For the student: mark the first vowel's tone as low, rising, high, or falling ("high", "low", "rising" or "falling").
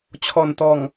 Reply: low